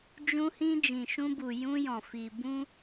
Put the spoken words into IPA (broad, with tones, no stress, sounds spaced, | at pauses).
d͡ʒ ũ˧ h ĩ˧ d͡ʒ ĩ˨ ʃ ũ˧ b u˨ j ũ˧ j ɔ̃˨ f i˨ b ũ˧